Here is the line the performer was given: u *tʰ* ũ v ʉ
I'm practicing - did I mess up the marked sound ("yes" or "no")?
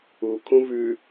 yes